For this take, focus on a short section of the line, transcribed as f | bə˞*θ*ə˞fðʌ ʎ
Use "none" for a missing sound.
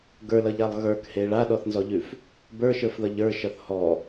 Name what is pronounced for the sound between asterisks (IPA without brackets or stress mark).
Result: ʃ